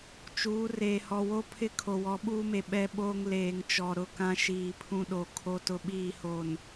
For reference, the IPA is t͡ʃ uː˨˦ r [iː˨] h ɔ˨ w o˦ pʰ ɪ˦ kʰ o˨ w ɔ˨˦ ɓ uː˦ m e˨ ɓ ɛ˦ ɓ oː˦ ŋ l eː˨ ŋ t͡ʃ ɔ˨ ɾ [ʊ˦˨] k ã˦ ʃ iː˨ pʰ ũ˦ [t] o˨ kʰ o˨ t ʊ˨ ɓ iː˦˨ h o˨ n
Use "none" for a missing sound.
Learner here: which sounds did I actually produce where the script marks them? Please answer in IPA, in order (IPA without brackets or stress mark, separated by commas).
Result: eː˨, ʊ˦˨, ɗ